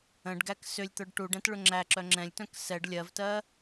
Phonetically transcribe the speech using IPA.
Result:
ə̃ ɖ ɡ æ k s ʏ lʲ t̪ œ ɖ ʈ u ɖ ɛ̃ t ɭ ʏ ŋ͡ǁ æ ǁ œ ŋ͡ǁ ɛ̃ lʲ t œ̃ k s ɛ ɖ lʲ ɜ v t ɜ

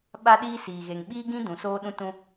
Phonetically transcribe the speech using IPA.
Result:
ɓ a˦ ɗ iː˦ s iː˨ ɣ e˨ ŋ ɓ iː˦ ɡ ĩ˦ d ũ˨ s oː˦ ɗ ũ˦ t ũ˦

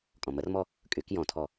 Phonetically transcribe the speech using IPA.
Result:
kʼ ɔ̃ m ə r m ɔ | kʼ y k j ɔ̃ tʰ ɔ

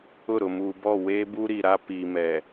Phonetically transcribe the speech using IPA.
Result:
ʊ˦˨ ɾ ʊ˨ m uː˨ b ɔ˦˨ w eː˦ b u˦ ɾ i˨ ɾ a˦ p iː˨ m ɛ˨

